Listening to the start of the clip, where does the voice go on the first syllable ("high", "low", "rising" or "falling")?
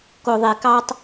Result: low